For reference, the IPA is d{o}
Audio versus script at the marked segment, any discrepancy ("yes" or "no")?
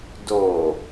no